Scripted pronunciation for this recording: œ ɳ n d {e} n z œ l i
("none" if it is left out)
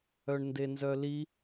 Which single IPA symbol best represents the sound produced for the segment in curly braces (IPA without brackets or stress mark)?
e